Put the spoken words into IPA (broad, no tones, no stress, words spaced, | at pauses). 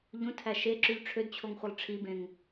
ʎũtʰæ ʃeǁyʎ ʈ͡ʂʰødt͡ɕʰoŋχʷɯlˠ ʈ͡ʂʰibẽŋ